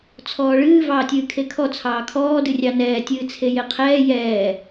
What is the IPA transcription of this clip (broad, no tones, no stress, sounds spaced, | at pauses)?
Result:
t͡sʰ ɔː ɭ ɨː v ɑː tʲ ɨː kʰ e kʰ ɔ t͡sʰ ɑː kʰ ɔː d ɨ rʲ ɑ n ɛː tʲ ɨː t͡sʰ e j e qʰ ɛː j ɛː